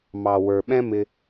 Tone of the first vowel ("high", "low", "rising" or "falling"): low